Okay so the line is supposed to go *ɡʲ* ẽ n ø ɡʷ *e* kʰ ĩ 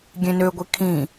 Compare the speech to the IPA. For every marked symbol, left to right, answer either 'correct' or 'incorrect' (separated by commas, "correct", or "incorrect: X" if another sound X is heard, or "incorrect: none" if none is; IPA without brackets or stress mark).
correct, incorrect: i